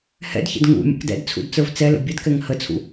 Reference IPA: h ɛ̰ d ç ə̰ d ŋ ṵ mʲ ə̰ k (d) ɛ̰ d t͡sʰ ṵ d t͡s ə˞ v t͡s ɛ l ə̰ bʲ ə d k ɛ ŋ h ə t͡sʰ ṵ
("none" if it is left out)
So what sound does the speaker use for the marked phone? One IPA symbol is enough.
d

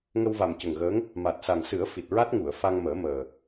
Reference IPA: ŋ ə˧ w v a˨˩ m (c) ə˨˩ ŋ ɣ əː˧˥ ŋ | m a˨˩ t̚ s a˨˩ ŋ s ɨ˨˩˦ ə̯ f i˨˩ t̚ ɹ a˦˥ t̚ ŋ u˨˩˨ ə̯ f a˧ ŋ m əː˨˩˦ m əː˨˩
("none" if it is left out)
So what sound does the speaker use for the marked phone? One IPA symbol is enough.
c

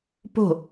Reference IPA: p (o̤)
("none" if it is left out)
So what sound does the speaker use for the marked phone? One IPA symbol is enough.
o̤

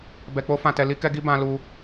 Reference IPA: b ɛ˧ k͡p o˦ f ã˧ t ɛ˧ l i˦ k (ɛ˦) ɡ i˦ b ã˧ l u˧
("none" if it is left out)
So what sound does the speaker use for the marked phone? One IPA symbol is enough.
ɛ˦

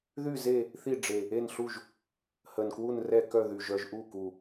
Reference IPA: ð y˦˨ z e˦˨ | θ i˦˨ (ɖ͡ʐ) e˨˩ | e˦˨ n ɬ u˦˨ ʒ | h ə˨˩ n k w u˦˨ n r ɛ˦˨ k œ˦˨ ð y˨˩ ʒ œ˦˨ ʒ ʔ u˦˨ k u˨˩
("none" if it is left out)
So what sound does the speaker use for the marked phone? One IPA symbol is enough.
ɖ͡ʐ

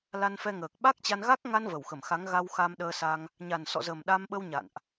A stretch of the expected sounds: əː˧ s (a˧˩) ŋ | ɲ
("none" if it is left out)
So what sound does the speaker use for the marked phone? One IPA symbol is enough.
a˧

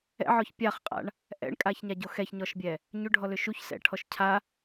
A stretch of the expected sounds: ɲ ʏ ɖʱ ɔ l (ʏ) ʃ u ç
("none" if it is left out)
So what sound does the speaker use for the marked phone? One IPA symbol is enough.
ʏ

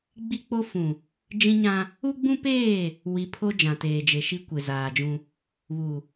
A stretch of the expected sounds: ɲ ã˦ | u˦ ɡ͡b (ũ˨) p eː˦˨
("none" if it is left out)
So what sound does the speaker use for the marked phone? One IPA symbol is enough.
ũ˦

